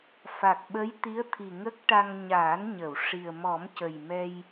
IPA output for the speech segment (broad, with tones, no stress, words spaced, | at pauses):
fa˨˩k̚ɓə˧˥j t̪i˧˥ə̯t̪ʰi˨˩ ŋə˦˥k̚ʈa˧ŋ ɲaː˨˩˦nɲə˨˩˨w ʂi˨˩ə̯ mɔ˨˩˦mcə˨˩jmɛ˧j